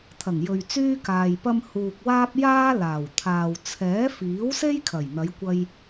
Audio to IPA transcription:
t̪ʰ ɐ˨˩ ŋ j ɵ˨ ɥ t͡s yː˥ k aː˨ j p ɐ˧ m h uː˨ k̚ w aː˥ p̚ j aː˥ l aː˨˩ w t̪ʰ aː˨ w t͡sʰ ɛː˨˥ f iː˨˥ w s e˥ j kʰ ɐ˨˩ j n̪ ɐ˨˧ j kʷ ɐ˧ j

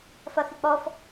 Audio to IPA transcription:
f ɐ x ɪ k͡p ɔ f

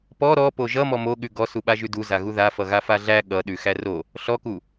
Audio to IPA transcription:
p ɔ ɾ ɔ p o ʒ ʌ m ɔ m o ɠ ʉ ɡ ɔ s u ɓ a ʒ ʉ d u z a ɣ u ð a f ʌ ɣ a f a ɮ æ ɠ ʌ ɗ ʉ x æ r o | ɬ ɔ k u

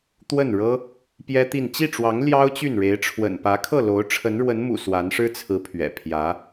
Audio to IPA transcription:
t̪ w ə˥˩ n ɻ ɤ˥ | p j ɛ˥ t̪ i˥˧ n t͡ɕ i˥˩ ʈ͡ʂ w ɑ˧˥ ŋ l j ɑ˥ ʊ̯ t͡ɕ y˥˩ n ɻ e˧˥ ɪ̯ ʈ͡ʂʰ w ə̰˨˩ n p ä˧˥ kʰ ɤ˥˩ l o˧˥ ʊ̯ ʈ͡ʂʰ ə˧˥ n ɻ w ə˧˥ n m ṵ˨˩ s w a˧˥ n ʂ ɻ̩˥ t͡sʰ ɹ̩˧˥ pʰ ɥ ɛ̰˨˩ pʰ j ä˧˥

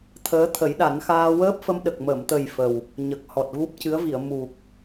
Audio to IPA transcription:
t̪ʰ əː˧˥ t̪ʰ ə˨˩˦ j ɗ a˨˩˦ n x aː˧ w əː˦˥ p̚ f ə˧ m ɗ ə˨˩ k̚ m ə˨˩˨ m t̪ ə˨˩ j f ə˨˩ w | ɲ ə˨˩ k̚ h ɔ˨˩ t̚ ɣ u˦˥ p̚ c ɨ˧˥ ə̯ v i˨˩˨ ə̯ m u˨˩ k̚

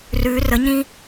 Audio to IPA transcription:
r ʉ r ə ɲ ĩ

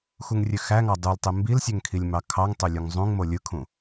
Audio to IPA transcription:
x u ŋ rʲ ø x æ ŋ ɑ dˤ u l tˤ e m b i l sʲ ø ŋ kʰ i lʲ m ɑ kʰ ɑ ŋ tˤ ø lʲ u ŋ zˤ ũ ŋ m o lʲ ɯ kʰ ũ

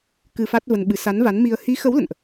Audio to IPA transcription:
k ɨ˧ f a˦˥ t̚ v ə˧ n ɓ ɨ˨˦ s a˨˦ n v a˨˦ n m i˧ ə̯ h i˨˦ x ə˨˦ w l ə̰˧˨ n ʔ

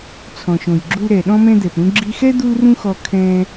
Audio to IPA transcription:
t͡sʰ ɔ̃˩ ʃ õ˩ j ɡ͡ǁ u˧ l ɾ ɛ˩ ɗ ɔ̃˧ m ɛ̃˧ d̪ ɛ˩ p ɾ ũ˧ ɡ͡ǁ i˧ x ɛ˥ d̪ u˥ l r ũ˥ x ɔ˧ kʰ ɛ̃˧

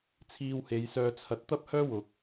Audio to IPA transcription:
t͡sʰ iː˧ w h e˨˧ j s œː˧ t͡sʰ ɐ˨˥ t̚ t̪ ɐ˥ p̚ h œː˥ w ʊ˨ k̚

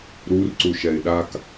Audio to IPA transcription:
ɾ u r ǀ u ʃ ɛ ɪ̯ ɗ a k

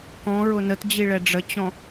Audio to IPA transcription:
k ɔ̃ ɹ ʊ n ə t d͡ʑ i ɭ ɛ ɖ͡ʐ ə t͡ɕ ɔ̃

